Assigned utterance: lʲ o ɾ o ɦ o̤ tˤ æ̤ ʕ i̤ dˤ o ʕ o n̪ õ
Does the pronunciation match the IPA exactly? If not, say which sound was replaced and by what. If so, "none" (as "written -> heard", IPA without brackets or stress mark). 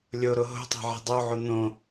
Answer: none